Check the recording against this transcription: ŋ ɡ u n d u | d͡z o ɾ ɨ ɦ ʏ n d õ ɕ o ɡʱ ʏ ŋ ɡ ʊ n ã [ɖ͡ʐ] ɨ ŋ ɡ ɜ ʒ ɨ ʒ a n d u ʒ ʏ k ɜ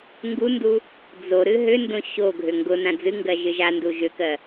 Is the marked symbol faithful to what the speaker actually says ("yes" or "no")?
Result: no